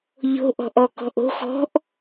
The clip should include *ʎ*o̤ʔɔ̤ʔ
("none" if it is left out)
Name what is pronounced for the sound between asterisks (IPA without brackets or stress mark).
ʎ